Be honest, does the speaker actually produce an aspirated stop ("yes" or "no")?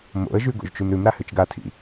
yes